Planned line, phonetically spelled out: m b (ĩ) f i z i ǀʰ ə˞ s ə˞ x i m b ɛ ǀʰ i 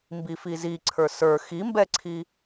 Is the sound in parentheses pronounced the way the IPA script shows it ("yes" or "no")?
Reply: no